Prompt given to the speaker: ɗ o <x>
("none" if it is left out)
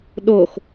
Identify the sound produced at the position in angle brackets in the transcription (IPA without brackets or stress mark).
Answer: x